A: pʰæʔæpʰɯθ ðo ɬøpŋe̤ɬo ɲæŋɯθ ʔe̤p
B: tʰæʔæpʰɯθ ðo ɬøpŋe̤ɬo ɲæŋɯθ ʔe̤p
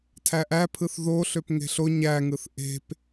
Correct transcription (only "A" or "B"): B